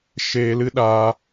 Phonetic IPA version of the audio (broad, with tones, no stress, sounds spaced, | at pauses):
ʃ eː˧ l ɨ˦ ɗ aː˧